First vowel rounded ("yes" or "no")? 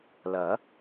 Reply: no